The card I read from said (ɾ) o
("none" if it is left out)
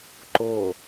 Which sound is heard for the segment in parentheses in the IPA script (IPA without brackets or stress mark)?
ǃ